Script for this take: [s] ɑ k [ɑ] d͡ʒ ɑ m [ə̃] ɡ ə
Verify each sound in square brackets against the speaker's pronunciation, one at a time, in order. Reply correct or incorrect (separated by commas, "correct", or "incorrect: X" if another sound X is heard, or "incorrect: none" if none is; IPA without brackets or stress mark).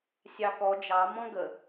incorrect: sʲ, incorrect: ɔ, incorrect: ɔ̃